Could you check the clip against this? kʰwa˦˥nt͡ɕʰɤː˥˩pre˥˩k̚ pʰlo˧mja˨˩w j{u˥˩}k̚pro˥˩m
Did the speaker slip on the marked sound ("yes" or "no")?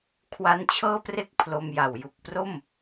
yes